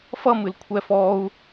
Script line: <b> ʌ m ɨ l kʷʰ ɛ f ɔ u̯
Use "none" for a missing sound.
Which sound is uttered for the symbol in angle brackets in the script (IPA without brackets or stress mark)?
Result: f